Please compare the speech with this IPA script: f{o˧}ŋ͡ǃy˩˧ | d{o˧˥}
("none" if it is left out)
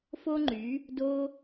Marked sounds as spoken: o˧, o˧

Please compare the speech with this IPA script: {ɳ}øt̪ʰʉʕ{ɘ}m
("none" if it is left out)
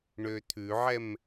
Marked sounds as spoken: ɳ, ɛ

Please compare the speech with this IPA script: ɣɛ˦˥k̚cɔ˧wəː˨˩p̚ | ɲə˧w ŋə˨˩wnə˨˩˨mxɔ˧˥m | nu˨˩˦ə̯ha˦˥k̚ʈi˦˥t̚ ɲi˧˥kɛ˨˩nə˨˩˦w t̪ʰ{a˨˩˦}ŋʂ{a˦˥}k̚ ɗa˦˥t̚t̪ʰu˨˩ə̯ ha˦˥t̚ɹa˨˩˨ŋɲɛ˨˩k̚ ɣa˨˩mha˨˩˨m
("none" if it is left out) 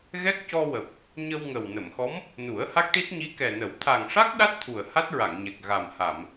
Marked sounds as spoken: a˨˩, a˦˥

